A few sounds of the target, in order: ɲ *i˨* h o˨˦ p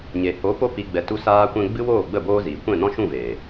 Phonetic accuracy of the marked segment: incorrect: e˨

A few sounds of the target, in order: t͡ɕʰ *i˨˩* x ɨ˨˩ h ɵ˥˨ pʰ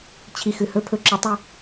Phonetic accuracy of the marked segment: correct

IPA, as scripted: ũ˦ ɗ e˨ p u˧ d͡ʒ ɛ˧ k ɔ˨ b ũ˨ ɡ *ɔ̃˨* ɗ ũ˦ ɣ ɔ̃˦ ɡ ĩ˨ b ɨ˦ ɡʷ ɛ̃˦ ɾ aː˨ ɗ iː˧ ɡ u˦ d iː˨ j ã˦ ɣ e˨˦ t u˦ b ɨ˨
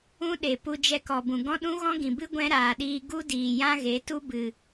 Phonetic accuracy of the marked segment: incorrect: ɔ̃˦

